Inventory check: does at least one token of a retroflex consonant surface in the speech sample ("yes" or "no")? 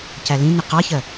no